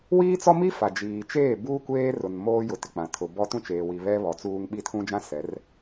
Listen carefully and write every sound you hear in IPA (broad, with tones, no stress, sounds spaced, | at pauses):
w iː˦ t͡s ɔ˦ m i˦ f a˨ d͡ʒ iː˨ t͡ʃ eː˦˨ b uː˦ kʷ eː˦ r ʊ˨ n m oː˦ j ʊ˨ t ɪ˨ k͡p ã˨ tʰ ʊ˨ b ɔ˦ t ũ˦˨ t͡ʃ eː˨ w i˨ β ɛ˦ β ɔ˨˦ t͡s uː˦ ŋ ɓ i˦˨ tʰ ũ˦ d͡ʒ ã˦ s ɛ˨˦ r